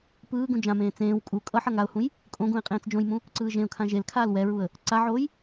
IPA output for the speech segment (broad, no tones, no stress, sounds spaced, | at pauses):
p ɯː ɡ ũ d͡ʒ ã m ẽː t͡s ẽː w kʼ u kʼ ʌ ħ ʌ ŋ a ʊ̯ h ũ j | kʼ õ ɡ ũ ɪ̯ qʼ ẽː t͡s d͡ʒ õ j m ũ | ǀ ɯː ʒ ẽ ʊ̯ kʰ ã ʒ e l kʰ aː l w ɛ ɹ u ə̯ | ǀ a ʕ oː j